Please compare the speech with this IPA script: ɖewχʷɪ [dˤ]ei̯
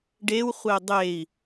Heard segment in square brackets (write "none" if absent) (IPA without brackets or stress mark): dˤ